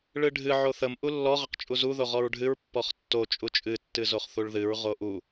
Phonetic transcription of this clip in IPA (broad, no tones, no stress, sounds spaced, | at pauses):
ɭ ɨ ɖʱ ɨ ʕ o θ ə m ʔ u lː ɔ ʁ ə q t͡ʃʼ u z u ð o ʁ ɔ ɹ ɖʱ ɨ ɹ pː ɔ χ tː o t͡ʃʼ u t͡ʃʼ ɨ tː ɨ z o χ θ u ɭ ð ɨ ɹ ʁ o ʔ u